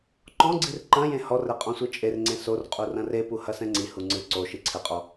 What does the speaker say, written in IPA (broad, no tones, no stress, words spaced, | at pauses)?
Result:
ǃɔ̃ ɡ͡ǀirǃɐ̃jẽ hɔrɛ qʼɔ̃sʷɨt͡ʃʼerŋ͡ǀẽ sor qʼurɐ̃repu hɐsɛ̃ŋ͡ǀihu ŋ͡ǀɨ ǀo ʃiǀʰɘqʼɔ